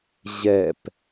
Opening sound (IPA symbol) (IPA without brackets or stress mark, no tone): ʑ